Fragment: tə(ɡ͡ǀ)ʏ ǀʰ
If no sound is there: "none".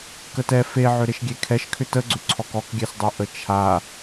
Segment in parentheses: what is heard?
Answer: ɡ͡ǀ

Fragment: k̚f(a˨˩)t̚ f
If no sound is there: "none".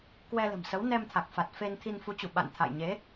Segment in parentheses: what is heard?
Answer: a˨˩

